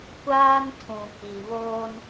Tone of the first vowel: high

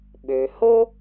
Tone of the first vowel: low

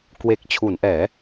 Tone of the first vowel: low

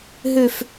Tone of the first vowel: high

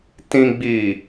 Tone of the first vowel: low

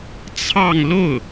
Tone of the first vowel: falling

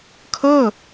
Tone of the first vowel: falling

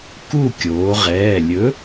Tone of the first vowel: falling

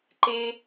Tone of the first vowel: high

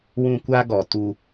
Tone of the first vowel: high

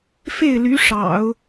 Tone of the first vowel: falling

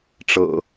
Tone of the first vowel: low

